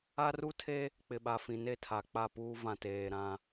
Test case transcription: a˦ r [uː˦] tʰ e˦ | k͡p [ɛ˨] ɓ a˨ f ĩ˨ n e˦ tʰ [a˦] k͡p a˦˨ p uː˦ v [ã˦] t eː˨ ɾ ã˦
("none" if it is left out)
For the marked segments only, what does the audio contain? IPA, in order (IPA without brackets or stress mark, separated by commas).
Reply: u˦, ɪ˨, a˨, ã˨